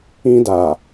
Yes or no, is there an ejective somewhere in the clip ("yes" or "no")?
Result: no